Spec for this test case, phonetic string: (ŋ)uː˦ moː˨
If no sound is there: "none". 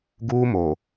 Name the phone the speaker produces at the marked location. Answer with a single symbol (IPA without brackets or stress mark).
ɡ